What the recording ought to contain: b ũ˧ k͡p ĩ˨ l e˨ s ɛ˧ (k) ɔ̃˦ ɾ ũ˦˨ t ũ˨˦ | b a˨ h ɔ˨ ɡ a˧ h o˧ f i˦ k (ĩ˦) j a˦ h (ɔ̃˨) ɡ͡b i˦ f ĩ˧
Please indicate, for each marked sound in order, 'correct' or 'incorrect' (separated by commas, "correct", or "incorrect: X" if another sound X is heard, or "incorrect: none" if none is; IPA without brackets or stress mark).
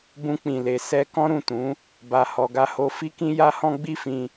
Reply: correct, correct, incorrect: ɔ̃˦